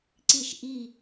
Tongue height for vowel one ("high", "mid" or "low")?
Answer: high